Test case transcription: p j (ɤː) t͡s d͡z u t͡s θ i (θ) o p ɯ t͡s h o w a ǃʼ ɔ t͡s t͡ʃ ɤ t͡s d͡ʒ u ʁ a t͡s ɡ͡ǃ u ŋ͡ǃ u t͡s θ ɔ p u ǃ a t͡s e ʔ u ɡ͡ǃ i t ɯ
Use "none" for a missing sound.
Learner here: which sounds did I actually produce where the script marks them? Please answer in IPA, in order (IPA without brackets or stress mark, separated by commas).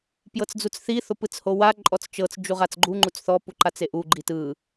ɤ, θ